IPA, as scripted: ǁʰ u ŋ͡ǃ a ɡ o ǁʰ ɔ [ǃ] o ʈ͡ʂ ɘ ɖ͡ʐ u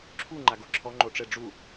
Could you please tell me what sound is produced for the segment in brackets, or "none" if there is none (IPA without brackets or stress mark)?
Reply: ŋ͡ǃ